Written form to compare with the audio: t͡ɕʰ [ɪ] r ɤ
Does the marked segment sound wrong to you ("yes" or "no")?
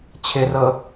no